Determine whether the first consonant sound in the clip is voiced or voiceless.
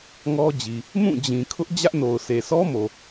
voiced